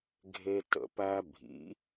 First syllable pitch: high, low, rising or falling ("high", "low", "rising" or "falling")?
high